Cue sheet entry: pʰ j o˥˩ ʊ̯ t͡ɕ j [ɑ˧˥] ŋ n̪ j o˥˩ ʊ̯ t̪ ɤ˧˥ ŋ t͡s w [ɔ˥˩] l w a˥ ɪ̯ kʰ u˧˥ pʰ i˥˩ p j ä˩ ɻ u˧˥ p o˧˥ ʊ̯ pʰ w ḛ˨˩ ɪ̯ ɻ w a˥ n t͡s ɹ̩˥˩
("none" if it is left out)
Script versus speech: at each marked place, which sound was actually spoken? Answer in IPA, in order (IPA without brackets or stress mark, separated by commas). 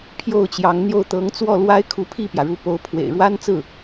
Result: ɑ˧˥, ɔ˥˩